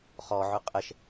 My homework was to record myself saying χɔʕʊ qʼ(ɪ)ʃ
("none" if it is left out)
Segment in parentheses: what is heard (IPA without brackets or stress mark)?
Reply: ə